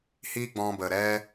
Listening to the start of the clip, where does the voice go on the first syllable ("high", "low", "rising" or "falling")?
high